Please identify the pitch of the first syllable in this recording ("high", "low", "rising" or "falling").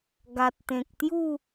low